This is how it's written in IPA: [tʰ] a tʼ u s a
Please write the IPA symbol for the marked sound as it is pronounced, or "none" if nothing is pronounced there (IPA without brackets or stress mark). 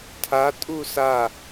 tʰ